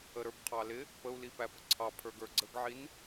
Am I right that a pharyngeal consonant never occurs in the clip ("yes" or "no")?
no